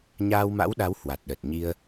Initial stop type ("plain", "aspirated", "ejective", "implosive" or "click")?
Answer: implosive